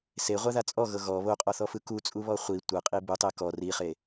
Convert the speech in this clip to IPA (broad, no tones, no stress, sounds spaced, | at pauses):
s e ʁʷ a ð a t͡sʼ ɔ ɣ ɤ ɣ ɔ β o qʼ ɔ θ ɔ f ɯ k u t͡sʼ u β ɔ χʷ i tʷ ɤ qʼ i b u tˤ e k ɔ r i χ e